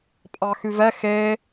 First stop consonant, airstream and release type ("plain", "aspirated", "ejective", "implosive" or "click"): ejective